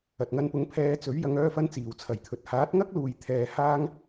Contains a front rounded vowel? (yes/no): yes